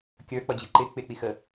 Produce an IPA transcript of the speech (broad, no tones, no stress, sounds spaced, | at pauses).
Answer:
kʲ ə˞ k͡p ʌ d͡ʑ i ǃ ɪ k͡p ɪ k͡p i x ə